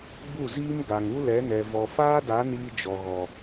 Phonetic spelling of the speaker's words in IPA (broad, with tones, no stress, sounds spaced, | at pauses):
ɡ͡b u˦˨ z iː˦ m ɡ a˨ ŋ u˦ l ɛ˨˦ n ɛ˨ v ɔ˨ f aː˦ d a˨˦ n iː˦ d͡ʒ ɔ˨ ɣ ɔ˨